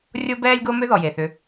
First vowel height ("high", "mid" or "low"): mid